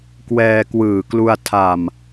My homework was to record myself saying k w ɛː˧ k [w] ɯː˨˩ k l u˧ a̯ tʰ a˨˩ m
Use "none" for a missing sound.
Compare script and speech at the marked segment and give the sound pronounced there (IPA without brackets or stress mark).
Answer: w